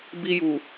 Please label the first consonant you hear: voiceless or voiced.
voiced